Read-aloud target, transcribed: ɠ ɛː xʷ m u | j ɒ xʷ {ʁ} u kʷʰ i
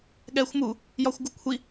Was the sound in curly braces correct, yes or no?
no